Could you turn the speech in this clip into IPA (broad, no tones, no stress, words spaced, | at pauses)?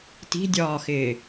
ti̤dʲɒːxɪː